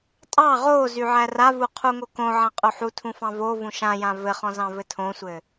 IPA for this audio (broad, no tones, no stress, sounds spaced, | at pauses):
tʼ ɑ ʁ o z y ʕ æ r a v u qʰ u ŋ o k õ ʕ ã qʼ o ħ u tʰ ũ f ɑ̃ v o v ũ ʃ ã j ã v ɘ χ ɔ̃ z ɑ̃ v ɘ tʰ õ sʷ ɘ